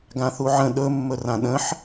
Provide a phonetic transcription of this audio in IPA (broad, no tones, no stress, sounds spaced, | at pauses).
ɡ ã θ u ʕ ə̃ ɗ ɵ mː ɵ r ã ɗ ə̃ ħ